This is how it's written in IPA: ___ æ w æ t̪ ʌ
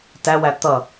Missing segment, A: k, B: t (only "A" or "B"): B